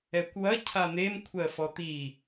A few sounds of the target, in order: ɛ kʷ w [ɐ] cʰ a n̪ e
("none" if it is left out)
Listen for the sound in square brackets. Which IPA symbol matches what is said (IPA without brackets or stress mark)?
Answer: ɐ